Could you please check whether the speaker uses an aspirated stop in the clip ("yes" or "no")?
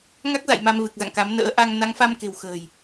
no